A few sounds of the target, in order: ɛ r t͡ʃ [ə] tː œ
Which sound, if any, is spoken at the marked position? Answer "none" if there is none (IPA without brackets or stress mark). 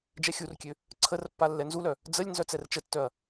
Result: ə